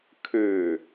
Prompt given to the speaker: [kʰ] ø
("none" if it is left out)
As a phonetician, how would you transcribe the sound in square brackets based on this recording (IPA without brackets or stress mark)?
kʰ